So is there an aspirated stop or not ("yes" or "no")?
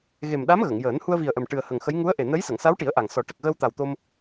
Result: no